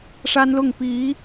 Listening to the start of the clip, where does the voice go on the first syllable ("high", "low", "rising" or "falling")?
high